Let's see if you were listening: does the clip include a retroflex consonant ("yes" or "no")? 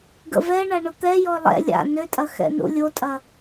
yes